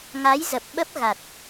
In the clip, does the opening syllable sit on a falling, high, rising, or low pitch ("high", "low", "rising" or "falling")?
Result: rising